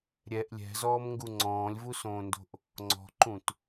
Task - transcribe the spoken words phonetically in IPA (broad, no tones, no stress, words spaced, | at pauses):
ɾʲɛʔ lʲɛ̤zɔːmŋɡu ŋ͡ǀɔ̃ːlʲvusõːndo̤ʔ | ŋ͡ǀɔ̤ǃũt